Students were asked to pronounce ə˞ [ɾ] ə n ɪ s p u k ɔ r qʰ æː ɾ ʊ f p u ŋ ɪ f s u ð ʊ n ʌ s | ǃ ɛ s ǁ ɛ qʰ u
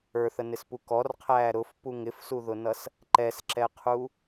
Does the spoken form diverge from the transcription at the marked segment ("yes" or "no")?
yes